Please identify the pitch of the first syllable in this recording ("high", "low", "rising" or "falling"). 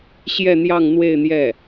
falling